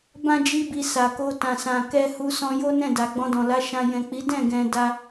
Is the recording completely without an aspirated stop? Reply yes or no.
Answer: yes